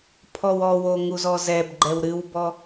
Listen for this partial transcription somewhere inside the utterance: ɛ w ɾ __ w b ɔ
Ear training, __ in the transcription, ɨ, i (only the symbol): ɨ